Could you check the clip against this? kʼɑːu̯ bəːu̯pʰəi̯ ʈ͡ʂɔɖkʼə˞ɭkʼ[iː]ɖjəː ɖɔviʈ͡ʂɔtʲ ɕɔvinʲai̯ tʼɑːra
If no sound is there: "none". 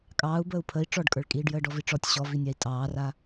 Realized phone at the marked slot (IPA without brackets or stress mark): iː